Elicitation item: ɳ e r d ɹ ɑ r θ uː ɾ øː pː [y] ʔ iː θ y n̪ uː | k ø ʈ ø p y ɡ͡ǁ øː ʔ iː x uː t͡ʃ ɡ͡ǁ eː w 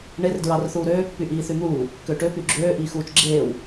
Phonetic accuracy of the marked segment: correct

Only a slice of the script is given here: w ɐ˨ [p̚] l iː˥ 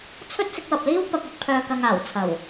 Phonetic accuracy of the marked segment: correct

